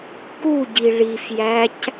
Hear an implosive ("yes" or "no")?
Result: no